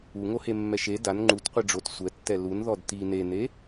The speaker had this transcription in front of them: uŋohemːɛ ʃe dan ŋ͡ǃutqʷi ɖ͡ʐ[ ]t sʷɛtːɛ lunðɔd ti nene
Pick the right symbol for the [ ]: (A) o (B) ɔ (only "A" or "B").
A